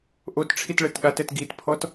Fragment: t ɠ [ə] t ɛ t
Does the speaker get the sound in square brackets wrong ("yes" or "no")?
yes